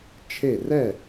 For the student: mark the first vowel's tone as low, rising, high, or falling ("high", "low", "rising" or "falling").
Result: falling